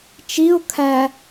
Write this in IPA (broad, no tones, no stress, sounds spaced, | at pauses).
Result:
t͡ʃ i ʊ̯ kʰ æ